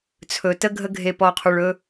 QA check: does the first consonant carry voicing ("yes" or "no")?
no